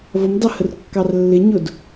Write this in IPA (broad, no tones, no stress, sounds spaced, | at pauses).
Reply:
v ʌ m d ɑ h ə r kː ɑ r lː ɪ ɲ ʊ d